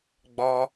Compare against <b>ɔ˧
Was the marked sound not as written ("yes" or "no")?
yes